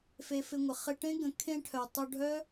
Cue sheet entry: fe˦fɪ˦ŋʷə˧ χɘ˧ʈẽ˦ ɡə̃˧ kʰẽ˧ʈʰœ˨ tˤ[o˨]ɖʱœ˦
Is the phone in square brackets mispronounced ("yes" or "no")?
yes